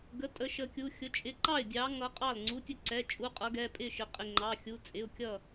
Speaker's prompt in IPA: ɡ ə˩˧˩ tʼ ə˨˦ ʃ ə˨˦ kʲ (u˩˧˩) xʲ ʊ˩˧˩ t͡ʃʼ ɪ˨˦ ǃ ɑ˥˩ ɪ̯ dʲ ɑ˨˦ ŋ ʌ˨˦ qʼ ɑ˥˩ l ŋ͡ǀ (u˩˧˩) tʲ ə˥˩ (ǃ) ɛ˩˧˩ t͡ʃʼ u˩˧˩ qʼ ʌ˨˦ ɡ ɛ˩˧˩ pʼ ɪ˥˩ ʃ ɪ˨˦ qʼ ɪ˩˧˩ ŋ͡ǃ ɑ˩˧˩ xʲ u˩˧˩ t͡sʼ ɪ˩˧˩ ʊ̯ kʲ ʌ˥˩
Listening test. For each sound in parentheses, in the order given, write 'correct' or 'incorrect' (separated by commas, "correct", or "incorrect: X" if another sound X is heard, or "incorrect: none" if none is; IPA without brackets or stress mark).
correct, correct, incorrect: ǀ